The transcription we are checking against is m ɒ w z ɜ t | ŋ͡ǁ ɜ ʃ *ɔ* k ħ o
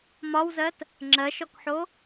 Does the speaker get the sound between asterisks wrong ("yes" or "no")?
no